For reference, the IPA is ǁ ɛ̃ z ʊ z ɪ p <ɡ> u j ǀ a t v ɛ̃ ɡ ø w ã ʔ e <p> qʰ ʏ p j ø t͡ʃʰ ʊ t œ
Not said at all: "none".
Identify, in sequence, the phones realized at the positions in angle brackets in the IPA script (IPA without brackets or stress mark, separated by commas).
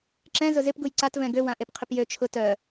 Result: ɡ, p